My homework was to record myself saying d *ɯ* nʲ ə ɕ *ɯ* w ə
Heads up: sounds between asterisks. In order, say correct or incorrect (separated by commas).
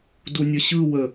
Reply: incorrect, correct